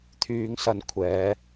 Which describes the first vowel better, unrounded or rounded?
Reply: rounded